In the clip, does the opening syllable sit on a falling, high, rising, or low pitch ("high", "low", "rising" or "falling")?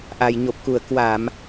low